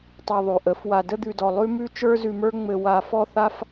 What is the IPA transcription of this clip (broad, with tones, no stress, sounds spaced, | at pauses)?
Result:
tˤ a˧ ðˤ ʉ˨ ʔ ə˨˦ f w a˨ d ə˧ d̪ ʉ˨ d ɔ˨ lˠ ʉ˦ m ʉ˦ t͡ʃ ə˞˦ z ʉ˧ m ə˞˦ ŋ͡m ɘ˧ w a˧ f ɔ˦ θ a˦ f